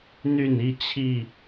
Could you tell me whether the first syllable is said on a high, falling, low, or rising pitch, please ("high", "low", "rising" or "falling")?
falling